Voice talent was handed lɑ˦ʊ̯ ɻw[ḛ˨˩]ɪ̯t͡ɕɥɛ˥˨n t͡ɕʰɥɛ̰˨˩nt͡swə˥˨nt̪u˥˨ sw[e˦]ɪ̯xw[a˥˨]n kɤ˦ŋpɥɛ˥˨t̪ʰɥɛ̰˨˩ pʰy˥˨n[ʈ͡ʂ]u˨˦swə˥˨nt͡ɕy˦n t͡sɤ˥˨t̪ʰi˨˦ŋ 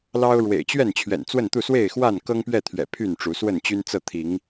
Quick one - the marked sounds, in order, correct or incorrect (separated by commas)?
correct, incorrect, correct, correct